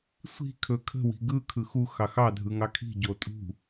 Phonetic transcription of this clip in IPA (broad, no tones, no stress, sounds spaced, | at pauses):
sʷ i̤ kʰ ɵ kʰ ə̤ w i̤ ɡ ɯ kʰ ɯ x u x ɑ x ɑ dʱ ɯ ŋ ɑ kʰ i̤ ɟ o tʼ ṳ